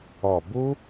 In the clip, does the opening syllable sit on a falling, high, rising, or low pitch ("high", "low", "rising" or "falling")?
low